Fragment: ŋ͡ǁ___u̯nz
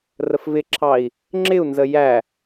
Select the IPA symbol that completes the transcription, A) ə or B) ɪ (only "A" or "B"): B